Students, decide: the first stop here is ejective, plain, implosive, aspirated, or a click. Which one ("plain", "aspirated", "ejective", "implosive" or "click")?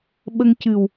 implosive